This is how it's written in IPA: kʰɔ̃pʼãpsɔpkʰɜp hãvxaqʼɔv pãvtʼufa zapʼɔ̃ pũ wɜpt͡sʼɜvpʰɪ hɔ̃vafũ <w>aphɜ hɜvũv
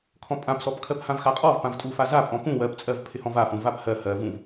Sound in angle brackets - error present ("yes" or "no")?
yes